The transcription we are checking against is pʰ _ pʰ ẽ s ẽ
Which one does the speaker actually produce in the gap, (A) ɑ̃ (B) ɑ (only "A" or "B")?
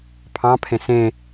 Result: A